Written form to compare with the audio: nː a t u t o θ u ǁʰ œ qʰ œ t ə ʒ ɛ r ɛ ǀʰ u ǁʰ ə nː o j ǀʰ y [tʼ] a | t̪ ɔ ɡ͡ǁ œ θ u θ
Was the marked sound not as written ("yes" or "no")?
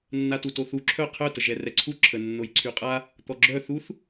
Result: yes